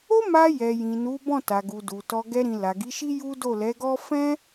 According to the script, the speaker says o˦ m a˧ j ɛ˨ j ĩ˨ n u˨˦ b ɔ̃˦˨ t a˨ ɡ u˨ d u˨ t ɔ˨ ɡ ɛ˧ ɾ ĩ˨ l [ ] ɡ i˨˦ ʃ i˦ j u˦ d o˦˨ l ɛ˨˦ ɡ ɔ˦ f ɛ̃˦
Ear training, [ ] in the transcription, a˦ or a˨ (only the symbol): a˨